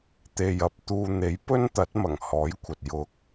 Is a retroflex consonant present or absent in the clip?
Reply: absent